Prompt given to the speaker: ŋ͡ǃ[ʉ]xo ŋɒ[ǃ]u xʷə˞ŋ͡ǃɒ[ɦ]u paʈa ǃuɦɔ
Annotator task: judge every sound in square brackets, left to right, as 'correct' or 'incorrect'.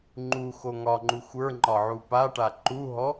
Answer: incorrect: u, incorrect: ŋ͡ǃ, incorrect: ʕ

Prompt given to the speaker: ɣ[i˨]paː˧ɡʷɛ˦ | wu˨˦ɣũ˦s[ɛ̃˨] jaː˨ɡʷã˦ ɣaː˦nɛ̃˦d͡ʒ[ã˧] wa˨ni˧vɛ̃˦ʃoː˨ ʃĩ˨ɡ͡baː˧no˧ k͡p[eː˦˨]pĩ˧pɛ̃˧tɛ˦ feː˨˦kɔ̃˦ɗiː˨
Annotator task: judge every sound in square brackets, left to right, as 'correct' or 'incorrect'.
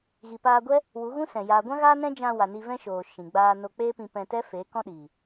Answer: correct, correct, correct, incorrect: eː˦

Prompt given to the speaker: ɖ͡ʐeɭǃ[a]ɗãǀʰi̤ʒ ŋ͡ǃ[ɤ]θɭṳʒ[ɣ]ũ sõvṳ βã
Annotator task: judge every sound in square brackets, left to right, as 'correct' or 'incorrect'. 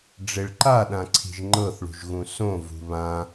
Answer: correct, correct, correct

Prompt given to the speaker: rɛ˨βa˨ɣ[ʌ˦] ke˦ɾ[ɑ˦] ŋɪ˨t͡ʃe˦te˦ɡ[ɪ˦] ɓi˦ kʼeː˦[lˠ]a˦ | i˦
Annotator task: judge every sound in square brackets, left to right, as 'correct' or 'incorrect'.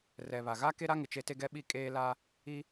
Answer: incorrect: a˦, incorrect: a˦, incorrect: ɛ˦, incorrect: l

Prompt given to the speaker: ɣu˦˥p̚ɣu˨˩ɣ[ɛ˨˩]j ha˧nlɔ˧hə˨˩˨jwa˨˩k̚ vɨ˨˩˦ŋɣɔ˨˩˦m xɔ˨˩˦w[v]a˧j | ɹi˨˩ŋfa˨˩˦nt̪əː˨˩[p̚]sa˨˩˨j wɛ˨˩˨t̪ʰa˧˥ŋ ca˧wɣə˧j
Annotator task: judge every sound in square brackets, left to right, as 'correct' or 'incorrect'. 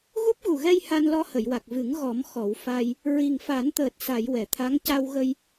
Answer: incorrect: ɛ˧, incorrect: f, incorrect: t̚

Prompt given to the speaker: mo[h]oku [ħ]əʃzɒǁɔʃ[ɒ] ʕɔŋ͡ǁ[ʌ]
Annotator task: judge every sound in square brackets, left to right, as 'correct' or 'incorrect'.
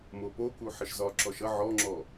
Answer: incorrect: p, correct, incorrect: ʌ, incorrect: ɔ

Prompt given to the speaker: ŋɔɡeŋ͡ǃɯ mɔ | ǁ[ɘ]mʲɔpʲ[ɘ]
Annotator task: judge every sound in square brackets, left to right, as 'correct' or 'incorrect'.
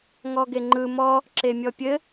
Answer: incorrect: e, correct

